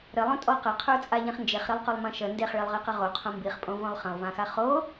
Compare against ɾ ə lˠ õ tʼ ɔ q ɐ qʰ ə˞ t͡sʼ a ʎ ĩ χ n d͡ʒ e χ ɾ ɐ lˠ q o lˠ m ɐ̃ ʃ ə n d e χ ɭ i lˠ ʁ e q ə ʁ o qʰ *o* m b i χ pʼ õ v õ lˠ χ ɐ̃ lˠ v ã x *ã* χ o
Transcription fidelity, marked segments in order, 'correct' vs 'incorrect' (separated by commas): incorrect, incorrect